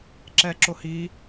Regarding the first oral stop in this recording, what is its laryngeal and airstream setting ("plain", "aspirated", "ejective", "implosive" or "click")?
click